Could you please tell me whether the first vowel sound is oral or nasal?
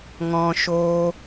nasal